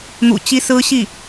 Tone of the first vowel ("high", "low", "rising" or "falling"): low